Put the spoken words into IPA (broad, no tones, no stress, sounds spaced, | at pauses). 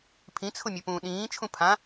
pʰ ĩ t͡sʰ ʊ mʲ ʊ p ũː ɗ ĩː t͡ʃʰ ũ pʰ ã